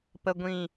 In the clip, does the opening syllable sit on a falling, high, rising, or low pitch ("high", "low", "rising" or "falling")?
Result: low